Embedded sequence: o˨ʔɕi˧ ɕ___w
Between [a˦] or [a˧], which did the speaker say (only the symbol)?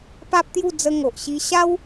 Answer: a˦